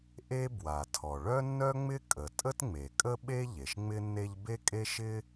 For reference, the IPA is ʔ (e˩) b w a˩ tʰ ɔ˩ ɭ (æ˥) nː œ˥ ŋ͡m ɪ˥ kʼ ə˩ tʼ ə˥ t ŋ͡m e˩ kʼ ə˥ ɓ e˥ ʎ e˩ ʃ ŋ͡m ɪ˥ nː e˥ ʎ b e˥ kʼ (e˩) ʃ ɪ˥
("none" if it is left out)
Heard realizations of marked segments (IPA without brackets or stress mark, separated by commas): e˥, œ˥, e˥